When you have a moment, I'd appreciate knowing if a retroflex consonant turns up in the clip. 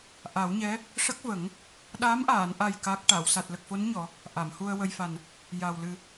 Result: yes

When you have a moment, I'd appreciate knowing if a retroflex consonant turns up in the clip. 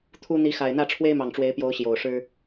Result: yes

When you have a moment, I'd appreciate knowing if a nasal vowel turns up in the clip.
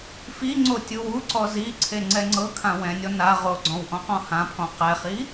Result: yes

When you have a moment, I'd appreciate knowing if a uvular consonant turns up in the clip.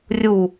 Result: no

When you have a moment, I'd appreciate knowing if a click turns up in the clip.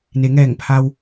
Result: no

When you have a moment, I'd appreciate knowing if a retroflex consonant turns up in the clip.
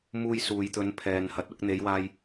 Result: no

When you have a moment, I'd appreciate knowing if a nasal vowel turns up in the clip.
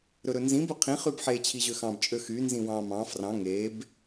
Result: yes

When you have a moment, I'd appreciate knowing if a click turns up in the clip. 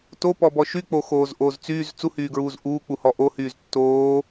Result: no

